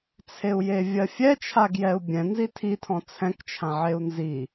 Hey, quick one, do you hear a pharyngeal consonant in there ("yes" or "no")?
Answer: yes